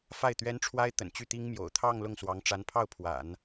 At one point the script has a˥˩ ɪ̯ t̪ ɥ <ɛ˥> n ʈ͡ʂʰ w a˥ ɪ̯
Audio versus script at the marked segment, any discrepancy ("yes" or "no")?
no